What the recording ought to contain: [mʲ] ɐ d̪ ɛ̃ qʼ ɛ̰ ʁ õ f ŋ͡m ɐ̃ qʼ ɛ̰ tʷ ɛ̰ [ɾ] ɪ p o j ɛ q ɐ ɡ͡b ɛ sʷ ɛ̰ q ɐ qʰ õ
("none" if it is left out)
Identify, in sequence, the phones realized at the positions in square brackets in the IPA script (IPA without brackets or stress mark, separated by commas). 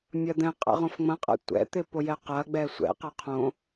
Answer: mʲ, t̪